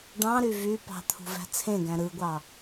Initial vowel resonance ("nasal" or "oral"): nasal